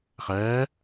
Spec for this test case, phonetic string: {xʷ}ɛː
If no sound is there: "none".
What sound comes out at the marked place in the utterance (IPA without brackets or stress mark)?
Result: χ